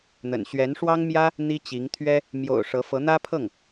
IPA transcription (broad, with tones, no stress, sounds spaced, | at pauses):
n̪ ə̰˨˩ n ɕ ɥ ɛ˧˥ n ʂ w ɑ˥ ŋ m j ä˥ | n̪ i˥ t͡ɕ i˧˥ ŋ t̪ʰ ɥ ɛ˥ | m j o̰˨˩ ʊ̯ ʂ ɤ˧˥ f ɤ˧˥ n̪ ä˥ pʰ ɤ˥˩ ŋ